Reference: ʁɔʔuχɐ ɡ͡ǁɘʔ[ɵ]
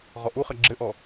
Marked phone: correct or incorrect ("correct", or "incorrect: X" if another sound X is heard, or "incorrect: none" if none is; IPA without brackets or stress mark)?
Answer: incorrect: ɔ